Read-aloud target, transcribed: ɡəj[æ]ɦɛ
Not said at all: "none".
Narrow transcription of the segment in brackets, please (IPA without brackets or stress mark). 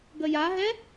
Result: a